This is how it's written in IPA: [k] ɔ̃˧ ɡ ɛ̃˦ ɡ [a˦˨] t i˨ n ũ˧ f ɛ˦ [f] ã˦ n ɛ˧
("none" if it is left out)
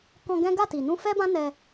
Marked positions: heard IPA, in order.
k, a˦˨, b

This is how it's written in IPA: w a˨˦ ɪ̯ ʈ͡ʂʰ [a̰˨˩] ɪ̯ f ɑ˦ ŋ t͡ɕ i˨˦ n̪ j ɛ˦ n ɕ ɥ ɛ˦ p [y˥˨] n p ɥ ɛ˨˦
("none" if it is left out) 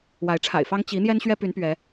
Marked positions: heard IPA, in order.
a̰˨˩, y˨˦

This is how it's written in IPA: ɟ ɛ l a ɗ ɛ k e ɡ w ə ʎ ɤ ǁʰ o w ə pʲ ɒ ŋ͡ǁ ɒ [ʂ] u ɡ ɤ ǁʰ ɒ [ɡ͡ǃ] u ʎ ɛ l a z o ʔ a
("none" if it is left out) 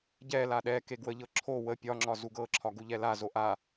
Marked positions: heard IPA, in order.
z, ɡ

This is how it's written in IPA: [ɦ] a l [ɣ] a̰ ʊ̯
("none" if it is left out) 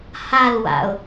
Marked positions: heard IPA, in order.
h, w

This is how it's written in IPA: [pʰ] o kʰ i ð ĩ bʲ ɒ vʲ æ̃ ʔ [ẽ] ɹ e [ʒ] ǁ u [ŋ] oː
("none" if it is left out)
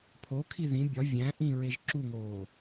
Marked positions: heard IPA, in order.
pʰ, ĩ, ʒ, ŋ

